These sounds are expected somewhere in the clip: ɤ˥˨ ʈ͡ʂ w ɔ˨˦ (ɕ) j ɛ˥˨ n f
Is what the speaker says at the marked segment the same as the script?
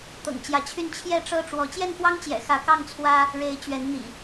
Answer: no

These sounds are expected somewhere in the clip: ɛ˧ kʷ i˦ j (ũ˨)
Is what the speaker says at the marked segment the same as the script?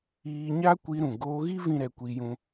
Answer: no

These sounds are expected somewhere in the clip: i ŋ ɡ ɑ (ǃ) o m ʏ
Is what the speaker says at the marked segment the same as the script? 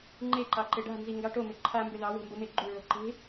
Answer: no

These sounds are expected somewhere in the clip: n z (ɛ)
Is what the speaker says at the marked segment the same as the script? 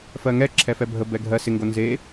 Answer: no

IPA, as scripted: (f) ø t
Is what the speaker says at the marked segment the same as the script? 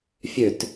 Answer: no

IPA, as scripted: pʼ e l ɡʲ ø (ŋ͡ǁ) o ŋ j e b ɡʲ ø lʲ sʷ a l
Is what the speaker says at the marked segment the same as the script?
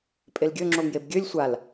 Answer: yes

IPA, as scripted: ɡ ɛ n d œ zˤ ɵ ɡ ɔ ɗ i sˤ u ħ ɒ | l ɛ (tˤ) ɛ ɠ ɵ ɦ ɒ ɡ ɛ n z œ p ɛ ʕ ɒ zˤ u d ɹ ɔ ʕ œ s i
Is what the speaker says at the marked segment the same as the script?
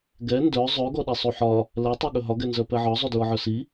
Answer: yes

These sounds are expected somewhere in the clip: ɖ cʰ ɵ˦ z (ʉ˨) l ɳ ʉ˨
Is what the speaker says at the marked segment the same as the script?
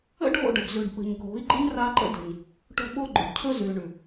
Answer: yes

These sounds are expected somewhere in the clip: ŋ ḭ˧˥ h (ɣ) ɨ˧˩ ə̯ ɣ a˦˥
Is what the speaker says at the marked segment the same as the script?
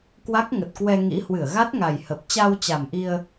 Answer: no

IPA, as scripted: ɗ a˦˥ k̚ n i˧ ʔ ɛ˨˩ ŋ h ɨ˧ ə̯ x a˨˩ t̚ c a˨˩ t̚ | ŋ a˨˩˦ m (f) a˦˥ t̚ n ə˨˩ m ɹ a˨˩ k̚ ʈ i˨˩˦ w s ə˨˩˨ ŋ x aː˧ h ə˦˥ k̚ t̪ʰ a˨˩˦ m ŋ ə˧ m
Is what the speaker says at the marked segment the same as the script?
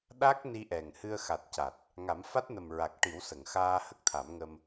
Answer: yes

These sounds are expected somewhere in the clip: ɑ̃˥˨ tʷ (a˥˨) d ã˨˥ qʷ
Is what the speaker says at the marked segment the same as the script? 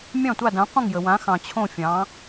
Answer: yes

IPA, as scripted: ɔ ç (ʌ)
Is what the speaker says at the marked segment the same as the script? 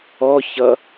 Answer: yes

